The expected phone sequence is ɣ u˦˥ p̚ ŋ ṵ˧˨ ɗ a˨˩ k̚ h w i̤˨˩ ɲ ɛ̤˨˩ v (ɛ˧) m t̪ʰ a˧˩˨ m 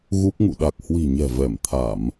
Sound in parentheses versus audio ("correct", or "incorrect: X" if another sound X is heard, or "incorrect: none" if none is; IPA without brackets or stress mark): incorrect: ɛ˧˩